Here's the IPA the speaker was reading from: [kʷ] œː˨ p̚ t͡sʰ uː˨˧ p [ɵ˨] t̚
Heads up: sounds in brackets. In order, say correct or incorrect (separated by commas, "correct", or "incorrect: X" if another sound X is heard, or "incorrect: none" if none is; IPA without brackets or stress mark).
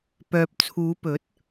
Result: incorrect: p, incorrect: ɵ˨˥